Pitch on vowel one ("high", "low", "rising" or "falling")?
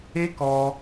high